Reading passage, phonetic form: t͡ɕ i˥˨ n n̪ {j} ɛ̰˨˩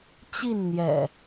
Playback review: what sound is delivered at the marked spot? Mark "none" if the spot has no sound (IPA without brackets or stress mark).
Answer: j